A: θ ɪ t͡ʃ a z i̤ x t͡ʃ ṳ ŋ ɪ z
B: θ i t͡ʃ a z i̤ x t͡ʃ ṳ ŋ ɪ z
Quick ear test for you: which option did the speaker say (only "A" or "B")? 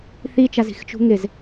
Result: B